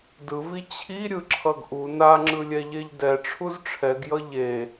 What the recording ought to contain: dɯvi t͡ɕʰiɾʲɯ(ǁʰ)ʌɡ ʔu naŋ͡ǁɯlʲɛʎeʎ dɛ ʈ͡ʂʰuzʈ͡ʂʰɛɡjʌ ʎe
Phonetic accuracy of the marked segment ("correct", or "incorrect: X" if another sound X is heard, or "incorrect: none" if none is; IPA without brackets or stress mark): correct